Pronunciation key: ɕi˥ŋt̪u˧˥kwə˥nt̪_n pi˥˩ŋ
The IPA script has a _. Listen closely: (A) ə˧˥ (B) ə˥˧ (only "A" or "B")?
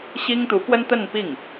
B